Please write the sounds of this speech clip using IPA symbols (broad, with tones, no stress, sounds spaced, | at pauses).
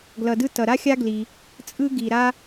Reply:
ɡ l ʌ˧ d ɯ˥ t ʌ˧ ɾ a˥ xʲ a˥ ɡ l i˧ | t͡sʼ ɯ˥ ɡ i˧ ɾ a˥